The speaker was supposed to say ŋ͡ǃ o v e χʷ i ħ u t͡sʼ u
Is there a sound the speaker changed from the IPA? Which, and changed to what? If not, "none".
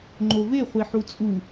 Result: none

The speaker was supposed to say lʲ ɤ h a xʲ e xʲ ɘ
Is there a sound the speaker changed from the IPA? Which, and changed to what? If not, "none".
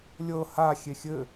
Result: none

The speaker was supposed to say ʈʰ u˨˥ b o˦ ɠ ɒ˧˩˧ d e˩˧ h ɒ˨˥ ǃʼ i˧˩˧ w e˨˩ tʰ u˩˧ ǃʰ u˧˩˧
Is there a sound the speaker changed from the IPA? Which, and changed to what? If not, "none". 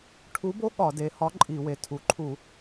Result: none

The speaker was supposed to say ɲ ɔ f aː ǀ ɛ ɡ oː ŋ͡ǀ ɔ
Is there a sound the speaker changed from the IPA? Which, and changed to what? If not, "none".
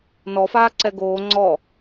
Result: ɲ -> n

